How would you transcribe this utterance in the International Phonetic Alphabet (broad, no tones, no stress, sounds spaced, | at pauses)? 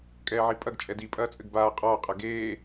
kʼ ɛː ʕ i pʼ ɐ ɡ t͡ʃʼ ɛ d i pʼ ɐː t͡sʼ ɘ ɡ b aː qʼ ɔː qʼ ɐ ɡ eː